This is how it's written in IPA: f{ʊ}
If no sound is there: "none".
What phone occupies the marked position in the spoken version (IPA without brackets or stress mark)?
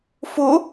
ʊ